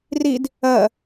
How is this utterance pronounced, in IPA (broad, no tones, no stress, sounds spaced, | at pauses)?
r i d | ɜ